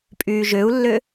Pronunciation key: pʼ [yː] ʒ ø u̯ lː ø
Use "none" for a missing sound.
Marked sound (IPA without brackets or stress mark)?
yː